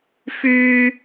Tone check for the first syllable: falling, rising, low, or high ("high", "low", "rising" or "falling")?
low